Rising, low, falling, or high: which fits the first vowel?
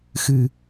low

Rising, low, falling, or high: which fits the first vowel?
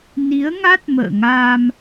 rising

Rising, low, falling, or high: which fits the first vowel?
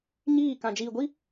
falling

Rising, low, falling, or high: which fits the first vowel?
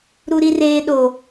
high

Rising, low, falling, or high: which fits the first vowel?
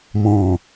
low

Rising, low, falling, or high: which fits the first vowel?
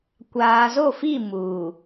low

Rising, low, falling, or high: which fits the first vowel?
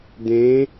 rising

